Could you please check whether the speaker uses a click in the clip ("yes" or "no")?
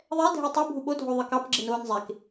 yes